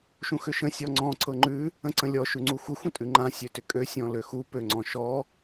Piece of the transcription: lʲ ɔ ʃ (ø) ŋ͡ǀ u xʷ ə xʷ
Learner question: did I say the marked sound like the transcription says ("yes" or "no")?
no